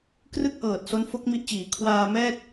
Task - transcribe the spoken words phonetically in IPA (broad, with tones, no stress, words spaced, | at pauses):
krɯ˥˩k̚ʔɤː˨˩t̚ so˦˥nfo˦˥k̚ mi˦˥ʔt͡ɕiː˩˦ kʰwaː˧mɛː˥˩t̚